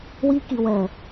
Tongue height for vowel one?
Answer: high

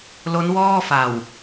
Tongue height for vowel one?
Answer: mid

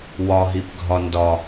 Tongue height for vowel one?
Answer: low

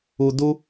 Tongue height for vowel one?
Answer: high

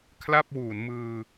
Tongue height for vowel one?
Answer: low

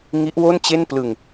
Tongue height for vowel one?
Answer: high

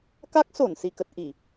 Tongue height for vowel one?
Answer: low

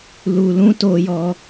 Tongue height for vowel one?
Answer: high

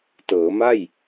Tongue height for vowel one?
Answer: mid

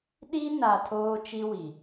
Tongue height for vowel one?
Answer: high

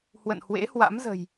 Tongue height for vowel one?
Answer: mid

